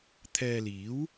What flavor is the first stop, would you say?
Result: aspirated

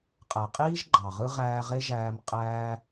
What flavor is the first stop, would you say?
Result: ejective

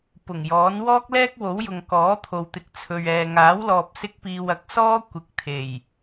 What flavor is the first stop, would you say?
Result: plain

